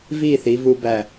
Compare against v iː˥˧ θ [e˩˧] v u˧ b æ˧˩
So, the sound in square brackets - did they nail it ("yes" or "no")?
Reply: no